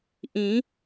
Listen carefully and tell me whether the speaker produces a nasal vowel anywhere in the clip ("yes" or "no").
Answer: yes